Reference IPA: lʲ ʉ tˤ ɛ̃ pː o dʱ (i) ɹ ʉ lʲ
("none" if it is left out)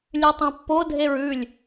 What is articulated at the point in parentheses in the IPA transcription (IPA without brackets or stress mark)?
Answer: e